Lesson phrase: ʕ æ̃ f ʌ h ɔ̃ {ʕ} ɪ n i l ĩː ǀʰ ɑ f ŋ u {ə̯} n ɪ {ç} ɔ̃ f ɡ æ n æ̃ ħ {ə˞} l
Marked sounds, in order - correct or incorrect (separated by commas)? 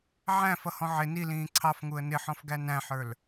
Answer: correct, correct, incorrect, correct